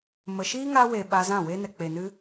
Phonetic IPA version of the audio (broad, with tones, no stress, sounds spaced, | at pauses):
m ə˨ ʃ iː˦ ŋ aː˧ w e˨ ɓ a˧ z ã˦˨ w e˦ n ɛ˨ k͡p e˨ n ɨ˧